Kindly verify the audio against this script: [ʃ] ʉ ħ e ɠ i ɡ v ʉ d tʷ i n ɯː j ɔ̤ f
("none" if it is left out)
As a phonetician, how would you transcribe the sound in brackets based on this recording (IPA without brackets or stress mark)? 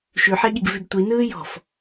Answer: ʃ